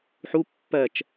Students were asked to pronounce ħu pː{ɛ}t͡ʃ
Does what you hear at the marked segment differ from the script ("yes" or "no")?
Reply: yes